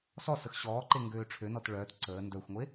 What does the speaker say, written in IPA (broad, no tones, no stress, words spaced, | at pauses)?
sɔ səxɕɔːǃe ŋɡøːʈ͡ʂʰønɔt ɭœːt ǀəː ndœxʷŋʷe